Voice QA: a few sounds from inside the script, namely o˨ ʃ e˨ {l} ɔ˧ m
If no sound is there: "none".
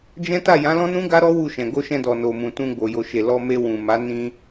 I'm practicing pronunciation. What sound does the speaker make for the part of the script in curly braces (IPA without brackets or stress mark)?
l